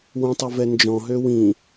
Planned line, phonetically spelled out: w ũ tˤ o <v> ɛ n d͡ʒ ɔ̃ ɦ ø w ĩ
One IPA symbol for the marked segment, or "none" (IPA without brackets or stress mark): v